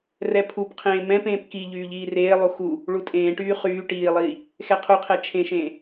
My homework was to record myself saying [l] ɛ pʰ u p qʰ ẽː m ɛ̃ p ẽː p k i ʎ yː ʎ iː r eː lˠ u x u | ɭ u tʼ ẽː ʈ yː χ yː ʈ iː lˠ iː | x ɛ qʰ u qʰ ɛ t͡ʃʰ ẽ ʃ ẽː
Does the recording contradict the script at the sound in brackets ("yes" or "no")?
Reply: yes